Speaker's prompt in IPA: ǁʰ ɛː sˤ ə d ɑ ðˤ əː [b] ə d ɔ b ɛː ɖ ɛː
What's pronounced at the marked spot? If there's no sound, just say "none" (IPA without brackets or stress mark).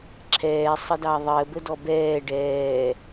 b